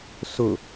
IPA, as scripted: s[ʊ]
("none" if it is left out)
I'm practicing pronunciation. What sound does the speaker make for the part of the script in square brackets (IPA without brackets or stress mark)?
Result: ʊ